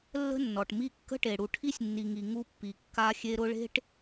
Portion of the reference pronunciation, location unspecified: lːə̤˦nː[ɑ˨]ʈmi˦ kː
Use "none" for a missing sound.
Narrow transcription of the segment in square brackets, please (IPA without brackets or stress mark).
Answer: ɔ˨